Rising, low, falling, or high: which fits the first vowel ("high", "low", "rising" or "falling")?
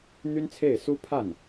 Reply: high